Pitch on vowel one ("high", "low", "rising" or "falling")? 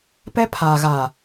high